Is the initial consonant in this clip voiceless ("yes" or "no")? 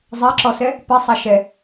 no